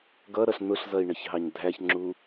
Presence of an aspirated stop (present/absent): absent